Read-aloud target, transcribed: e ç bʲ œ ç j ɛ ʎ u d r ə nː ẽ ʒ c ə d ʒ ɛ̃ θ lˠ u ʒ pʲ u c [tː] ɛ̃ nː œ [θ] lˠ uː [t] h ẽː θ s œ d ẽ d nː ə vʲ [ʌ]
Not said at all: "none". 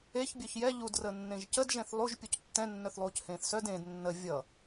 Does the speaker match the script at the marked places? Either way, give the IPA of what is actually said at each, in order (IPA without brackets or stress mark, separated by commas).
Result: tː, θ, c, ʌ